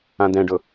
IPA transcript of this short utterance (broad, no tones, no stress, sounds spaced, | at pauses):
ã d̪ ɛ̃ ɖ ʊ